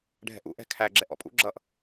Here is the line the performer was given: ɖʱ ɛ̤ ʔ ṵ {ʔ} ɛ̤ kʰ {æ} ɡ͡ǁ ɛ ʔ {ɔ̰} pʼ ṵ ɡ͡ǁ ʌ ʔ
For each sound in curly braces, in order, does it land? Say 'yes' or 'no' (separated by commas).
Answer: yes, yes, yes